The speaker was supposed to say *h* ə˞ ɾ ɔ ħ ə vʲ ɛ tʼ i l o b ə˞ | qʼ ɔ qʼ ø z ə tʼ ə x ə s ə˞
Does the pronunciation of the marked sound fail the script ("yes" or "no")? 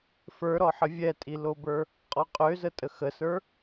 yes